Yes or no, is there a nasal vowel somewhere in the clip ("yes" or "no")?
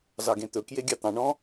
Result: yes